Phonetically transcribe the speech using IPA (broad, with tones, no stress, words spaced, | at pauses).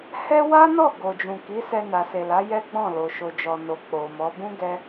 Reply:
hɛ˦ wa˦nɔ˦˨ ɡo˨d͡ʒũ˨ki˨˦ sɛ˧na˨se˨la˨˦ jɛ˦ɡ͡bɔ̃˦˨lo˨ ʃo˨d͡ʒɔ˨no˨ k͡po˨mɔ˨˦ bũ˦ ɡɛ˦